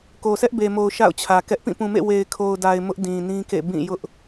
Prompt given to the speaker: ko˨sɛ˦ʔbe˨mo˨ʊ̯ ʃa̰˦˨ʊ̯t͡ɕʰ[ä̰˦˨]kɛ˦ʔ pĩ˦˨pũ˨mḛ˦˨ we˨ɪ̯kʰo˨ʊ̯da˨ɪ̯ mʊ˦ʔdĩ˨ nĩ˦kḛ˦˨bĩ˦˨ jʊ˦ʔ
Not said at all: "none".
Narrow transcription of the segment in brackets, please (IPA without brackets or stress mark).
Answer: ä˨